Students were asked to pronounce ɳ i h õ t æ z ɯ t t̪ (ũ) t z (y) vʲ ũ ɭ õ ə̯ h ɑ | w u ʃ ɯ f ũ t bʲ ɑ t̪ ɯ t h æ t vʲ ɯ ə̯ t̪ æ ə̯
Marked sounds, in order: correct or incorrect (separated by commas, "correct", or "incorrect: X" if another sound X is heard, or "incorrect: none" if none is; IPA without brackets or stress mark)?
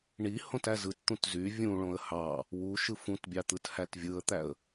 correct, correct